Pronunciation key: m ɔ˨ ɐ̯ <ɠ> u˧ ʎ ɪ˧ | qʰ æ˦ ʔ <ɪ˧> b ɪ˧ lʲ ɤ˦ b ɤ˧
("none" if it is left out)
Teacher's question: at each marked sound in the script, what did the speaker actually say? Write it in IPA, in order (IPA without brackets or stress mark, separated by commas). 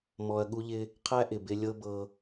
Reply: ɠ, ɪ˨